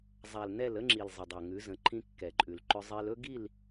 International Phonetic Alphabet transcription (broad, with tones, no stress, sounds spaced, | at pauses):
zˤ a˨ l n ɛ˦˨ l ə˦ ŋ͡ǁ i˨ l zˤ ə˨ dˤ a˨ ŋ ʉ˨˦ z ə̃˨˦ ǃʰ ĩ˦ kː ɛ˨ ǃʼ ʉ˨ l ǃ ʏ˦ zˤ e˦ l ɵ˦ ɡ i˦˨ l